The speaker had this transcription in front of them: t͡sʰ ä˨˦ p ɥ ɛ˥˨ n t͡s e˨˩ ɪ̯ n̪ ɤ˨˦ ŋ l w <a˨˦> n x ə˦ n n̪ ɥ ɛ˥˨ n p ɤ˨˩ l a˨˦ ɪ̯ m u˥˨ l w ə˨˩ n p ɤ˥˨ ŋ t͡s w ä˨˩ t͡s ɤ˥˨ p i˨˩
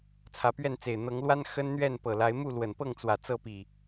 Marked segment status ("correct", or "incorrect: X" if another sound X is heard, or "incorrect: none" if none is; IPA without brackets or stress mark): incorrect: a˦